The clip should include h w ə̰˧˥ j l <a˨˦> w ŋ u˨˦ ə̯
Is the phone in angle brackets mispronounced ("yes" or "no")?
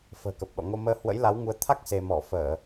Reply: no